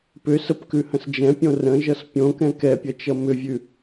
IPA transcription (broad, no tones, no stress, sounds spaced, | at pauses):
p ʏ s ə p k ʉ h ə̃ s d͡ʒ ɛ̃ pʲ õ r ə̃ ʒ ʌ s pʲ õ k ɛ̃ k ɛ pʲ ʌ t͡ʃ ʌ m ʏ vʲ ʉ